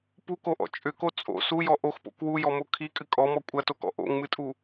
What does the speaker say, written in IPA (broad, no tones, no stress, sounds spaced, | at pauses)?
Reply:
p u k o ʔ ɔ̰ t͡ʃʼ ʏ k o t͡sʼ o̰ s u j ɔ ʔ o x p o̰ k w u j ɔ m o kʰ i kʼ ɨ kʼ ɔ m ɔ kʷʼ ɐ t o k ɔ̰ ʔ o̰ ŋ m ɨ tʼ u